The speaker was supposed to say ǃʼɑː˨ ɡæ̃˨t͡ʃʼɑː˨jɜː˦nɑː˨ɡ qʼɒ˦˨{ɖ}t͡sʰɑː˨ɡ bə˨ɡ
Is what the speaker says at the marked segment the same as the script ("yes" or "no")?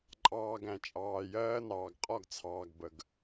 no